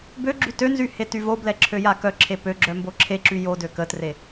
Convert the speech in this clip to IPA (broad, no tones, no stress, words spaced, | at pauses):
bøɡ͡ǁy tønzy hetyvoblɛ ǁʰøjakœǁʰe pøɡ͡ǁœ mboǁʰeǁy jo døkətre